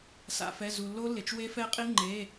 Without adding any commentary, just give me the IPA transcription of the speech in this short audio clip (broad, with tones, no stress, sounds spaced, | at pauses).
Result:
s a̰˩ f ɛ˩˧˩ z u˩ lː o˦˥ lː ɪ˩ t͡ʃ w e˦˥ f ɛ˦˥ qʼ i˦˥ ŋ͡ǃ e˩˧˩